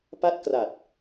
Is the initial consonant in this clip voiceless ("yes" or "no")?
yes